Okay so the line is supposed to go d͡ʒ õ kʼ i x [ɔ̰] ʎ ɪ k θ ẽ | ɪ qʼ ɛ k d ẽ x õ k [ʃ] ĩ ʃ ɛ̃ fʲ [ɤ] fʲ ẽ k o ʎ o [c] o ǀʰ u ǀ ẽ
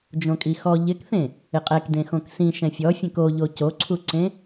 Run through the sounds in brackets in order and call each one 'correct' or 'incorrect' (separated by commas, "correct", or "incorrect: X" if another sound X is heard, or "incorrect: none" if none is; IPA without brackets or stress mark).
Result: incorrect: ɔ, incorrect: s, incorrect: ɔ, correct